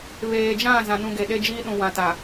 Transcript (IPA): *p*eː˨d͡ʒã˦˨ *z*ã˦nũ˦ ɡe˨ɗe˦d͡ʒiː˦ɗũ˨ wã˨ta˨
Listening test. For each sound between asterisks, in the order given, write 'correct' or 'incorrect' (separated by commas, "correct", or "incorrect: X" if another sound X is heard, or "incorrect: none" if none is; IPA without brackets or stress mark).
incorrect: β, correct